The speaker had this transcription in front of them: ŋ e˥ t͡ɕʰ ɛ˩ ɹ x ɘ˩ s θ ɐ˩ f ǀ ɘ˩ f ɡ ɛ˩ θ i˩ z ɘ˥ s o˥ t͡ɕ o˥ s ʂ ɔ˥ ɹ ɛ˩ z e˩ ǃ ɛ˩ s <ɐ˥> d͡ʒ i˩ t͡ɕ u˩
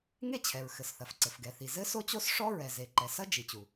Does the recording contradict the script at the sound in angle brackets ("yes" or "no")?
no